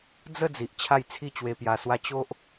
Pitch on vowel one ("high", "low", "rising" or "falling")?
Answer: falling